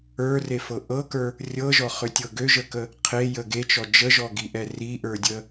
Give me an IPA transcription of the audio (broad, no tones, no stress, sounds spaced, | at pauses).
ə˞ r e f ɤ ʔ ɤ k ə˞ | rʲ ɤ ʒ ɔ χ ø tʲ ɤ ɡ ø ʒ ə k ə | qʰ e j ə ɡ e t͡ʃ ɔ d͡ʒ ə ʒ ɔ ɡ i ʔ ɛ r i ʔ ə˞ dʲ ə